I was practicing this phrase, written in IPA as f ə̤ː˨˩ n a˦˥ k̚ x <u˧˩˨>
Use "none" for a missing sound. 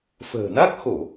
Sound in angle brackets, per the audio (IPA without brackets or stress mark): o˧˩˨